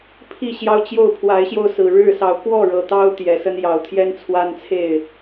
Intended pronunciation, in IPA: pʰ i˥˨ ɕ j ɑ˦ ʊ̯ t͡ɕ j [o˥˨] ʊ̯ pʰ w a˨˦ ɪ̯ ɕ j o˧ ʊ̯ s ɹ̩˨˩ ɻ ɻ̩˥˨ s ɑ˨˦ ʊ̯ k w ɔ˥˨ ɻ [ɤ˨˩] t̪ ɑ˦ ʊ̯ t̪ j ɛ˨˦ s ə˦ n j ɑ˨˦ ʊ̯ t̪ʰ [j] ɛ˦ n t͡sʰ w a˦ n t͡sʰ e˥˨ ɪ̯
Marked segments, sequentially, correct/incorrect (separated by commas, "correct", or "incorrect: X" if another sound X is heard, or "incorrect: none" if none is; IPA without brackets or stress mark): correct, correct, correct